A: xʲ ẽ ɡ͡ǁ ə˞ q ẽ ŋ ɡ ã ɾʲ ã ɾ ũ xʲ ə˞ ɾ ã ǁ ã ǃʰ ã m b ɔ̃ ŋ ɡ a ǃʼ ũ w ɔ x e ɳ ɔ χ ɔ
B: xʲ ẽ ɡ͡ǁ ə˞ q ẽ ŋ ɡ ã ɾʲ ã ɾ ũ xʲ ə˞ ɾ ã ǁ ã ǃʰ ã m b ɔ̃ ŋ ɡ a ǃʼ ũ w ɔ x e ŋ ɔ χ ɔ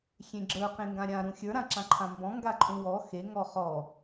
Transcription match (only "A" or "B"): B